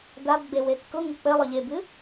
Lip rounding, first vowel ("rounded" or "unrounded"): unrounded